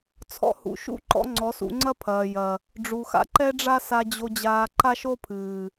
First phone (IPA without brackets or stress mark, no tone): t͡sʰ